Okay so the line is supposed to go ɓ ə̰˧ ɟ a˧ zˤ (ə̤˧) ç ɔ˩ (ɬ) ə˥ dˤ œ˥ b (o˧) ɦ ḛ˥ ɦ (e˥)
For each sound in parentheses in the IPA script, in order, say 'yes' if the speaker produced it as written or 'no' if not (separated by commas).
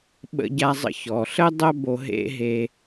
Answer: no, yes, yes, no